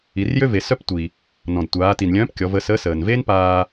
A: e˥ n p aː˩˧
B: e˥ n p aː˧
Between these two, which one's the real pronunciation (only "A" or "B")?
B